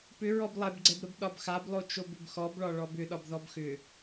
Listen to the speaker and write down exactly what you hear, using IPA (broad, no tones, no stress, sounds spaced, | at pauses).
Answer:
p ʏ ɹ ɔ b lˠ ɛ b ɡ͡ǀ ɛ b ɾ ə b ɗ ɒ b x a b lˠ o t͡ʃ o b ʏ b x ɔ b ɭ ɒ ɭ ɔ b ʏ ɗ ɒ b ð ɔ b x ʏ